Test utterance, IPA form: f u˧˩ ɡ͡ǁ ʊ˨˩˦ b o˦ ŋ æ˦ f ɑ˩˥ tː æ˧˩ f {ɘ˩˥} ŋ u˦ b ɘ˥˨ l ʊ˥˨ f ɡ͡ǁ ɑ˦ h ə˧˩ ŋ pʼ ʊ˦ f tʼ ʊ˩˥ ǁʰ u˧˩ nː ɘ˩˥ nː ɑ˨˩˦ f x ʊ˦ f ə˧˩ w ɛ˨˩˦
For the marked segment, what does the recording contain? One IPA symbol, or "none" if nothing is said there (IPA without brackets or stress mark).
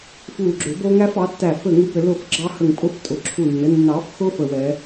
ɘ˥˨